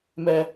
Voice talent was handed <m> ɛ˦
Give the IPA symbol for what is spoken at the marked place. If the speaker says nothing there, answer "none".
m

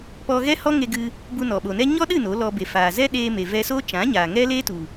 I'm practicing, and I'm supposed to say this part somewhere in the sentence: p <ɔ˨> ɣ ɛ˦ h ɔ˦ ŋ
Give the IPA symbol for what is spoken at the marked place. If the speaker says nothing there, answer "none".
ɔ˧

